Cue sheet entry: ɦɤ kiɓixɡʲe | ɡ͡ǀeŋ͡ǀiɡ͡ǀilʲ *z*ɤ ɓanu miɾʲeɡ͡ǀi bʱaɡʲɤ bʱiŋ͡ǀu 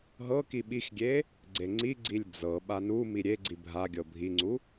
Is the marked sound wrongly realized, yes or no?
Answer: yes